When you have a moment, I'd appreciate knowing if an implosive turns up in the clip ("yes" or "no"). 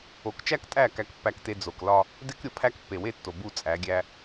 no